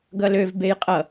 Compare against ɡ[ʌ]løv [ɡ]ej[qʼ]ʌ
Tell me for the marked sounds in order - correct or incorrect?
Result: correct, incorrect: b, correct

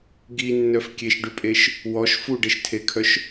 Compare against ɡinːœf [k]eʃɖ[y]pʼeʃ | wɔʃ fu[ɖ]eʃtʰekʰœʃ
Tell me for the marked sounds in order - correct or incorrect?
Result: incorrect: kʲ, correct, correct

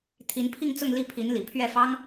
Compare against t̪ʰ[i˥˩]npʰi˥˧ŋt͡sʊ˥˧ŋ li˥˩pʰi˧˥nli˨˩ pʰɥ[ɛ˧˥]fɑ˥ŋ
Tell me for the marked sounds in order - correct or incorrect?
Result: incorrect: i˧˥, incorrect: ɛ˥˩

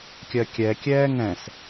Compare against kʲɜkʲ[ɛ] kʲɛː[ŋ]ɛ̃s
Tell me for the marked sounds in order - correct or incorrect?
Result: correct, correct

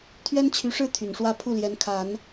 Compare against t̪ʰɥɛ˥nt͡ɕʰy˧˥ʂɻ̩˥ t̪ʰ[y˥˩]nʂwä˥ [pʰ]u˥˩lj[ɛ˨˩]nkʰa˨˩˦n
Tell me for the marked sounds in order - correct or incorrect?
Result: incorrect: y˨˩, correct, incorrect: ɛ˧˥

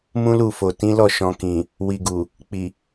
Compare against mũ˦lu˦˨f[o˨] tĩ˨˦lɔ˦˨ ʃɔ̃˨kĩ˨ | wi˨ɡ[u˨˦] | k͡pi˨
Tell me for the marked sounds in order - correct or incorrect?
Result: correct, incorrect: u˨

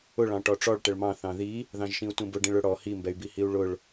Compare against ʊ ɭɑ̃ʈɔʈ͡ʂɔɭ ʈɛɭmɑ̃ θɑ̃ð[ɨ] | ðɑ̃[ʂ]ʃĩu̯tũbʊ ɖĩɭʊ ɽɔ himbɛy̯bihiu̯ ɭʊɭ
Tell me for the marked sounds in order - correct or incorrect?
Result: incorrect: i, incorrect: ʒ

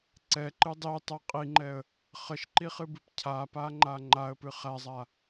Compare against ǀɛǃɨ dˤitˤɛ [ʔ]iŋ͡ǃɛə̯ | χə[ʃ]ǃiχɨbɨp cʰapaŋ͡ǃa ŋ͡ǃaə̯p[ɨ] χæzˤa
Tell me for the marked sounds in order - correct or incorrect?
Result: incorrect: qʼ, correct, correct

